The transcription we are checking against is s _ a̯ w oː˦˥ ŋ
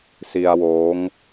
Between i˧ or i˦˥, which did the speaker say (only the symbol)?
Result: i˧